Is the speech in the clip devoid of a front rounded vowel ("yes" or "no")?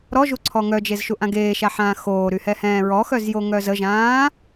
no